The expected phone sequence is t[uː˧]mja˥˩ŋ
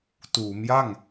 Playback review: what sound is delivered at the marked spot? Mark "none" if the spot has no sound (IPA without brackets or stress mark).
uː˩˦